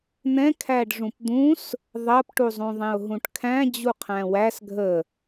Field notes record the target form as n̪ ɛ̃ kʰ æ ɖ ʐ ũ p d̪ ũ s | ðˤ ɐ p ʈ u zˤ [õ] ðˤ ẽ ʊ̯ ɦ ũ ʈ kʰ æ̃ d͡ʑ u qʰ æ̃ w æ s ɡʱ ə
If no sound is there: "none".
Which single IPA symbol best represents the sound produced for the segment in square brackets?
ũ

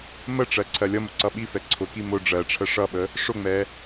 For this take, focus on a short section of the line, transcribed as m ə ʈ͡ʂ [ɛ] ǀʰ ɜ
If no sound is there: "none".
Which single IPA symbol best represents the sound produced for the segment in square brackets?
ɜ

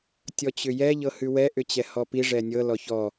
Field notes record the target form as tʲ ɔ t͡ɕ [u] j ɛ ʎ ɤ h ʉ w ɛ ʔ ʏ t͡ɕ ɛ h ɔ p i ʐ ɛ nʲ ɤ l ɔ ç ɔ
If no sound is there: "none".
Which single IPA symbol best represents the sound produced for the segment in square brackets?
ʏ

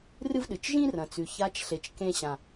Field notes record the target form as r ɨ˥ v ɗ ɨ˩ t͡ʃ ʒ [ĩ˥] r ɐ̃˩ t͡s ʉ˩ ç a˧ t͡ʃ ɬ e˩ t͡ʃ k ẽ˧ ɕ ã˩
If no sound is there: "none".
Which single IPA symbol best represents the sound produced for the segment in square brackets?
ĩ˥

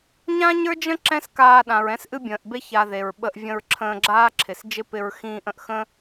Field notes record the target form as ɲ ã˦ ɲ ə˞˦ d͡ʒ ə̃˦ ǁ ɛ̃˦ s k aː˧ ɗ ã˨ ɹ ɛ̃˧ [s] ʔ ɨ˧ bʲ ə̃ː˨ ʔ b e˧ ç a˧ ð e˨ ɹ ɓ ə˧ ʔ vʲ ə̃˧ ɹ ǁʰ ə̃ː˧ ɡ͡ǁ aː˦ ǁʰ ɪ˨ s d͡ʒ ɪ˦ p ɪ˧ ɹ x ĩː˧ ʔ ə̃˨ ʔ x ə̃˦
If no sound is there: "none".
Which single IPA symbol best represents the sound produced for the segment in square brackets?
s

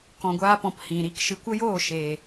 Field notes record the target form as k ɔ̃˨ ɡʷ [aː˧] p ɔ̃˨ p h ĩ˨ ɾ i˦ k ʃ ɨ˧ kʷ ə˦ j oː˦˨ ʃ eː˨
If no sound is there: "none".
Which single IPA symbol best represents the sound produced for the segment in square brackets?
aː˧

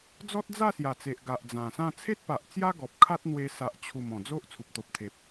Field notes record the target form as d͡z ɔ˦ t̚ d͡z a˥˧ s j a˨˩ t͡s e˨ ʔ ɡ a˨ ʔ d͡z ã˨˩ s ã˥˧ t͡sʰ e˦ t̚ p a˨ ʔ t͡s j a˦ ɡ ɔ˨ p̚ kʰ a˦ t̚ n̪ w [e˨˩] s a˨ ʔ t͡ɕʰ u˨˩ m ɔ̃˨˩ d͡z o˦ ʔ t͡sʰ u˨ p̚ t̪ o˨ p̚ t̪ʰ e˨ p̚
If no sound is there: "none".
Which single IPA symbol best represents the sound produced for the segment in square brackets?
e˧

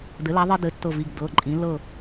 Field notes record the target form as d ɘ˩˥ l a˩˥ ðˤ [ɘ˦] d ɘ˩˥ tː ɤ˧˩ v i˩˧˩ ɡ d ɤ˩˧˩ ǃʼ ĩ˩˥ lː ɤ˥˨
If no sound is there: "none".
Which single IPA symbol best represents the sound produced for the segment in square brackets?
ɘ˦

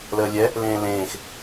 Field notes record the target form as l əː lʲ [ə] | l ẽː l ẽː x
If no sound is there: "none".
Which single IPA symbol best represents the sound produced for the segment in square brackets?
ɛ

